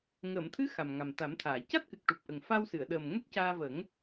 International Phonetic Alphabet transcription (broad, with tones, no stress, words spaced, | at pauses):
ŋəː˨˩˨mt̪ʰɨ˧˥ xa˨˩mŋa˨˩mt̪a˨˩˦mt̪ʰaː˨˩˨ ca˦˥t̚kɨ˨˩k̚ ʈu˨˩p̚ʔə˨˩ŋfa˧wsɨ˨˩˨ə̯ ɗəː˨˩m ŋɛ˦˥k̚caː˧və˨˩˦ŋ